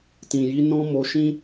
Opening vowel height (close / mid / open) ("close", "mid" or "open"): close